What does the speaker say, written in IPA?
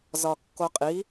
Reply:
z ɒ kː o qʼ i

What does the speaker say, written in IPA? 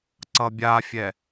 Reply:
ǀ ʌ bʲ a fʲ ɛ

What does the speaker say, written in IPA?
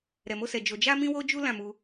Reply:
ɾ ɛ˨ m o˧ s ɛ˨ d͡ʒ o˧ d͡ʒ a˦ m ĩ˦ w o˦ d͡ʒ u˦ l ã˦˨ m u˧

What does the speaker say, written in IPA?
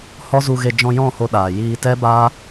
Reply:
h ɔ˦ z u˧ ɣ e˧ d͡ʒ ɔ̃˧ j ɔ̃˦˨ h o˧ ɗ aː˨ j iː˧ t ɛ˦ b aː˦

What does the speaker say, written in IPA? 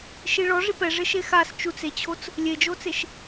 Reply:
ʃ i ɭ ɔ ʐ i p ɛ ʐ ɪ ʃ e x a s t͡ʃ u t͡s e t͡ɕʰ o t͡s | lʲ e d͡ʒ o t͡s e ʃ

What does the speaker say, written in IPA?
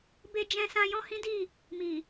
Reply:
b e˧ d͡ʒ ɛ̃˧ s ã˧ j ɔ̃˦ h ĩ˦ d i˦˨ | m i˨

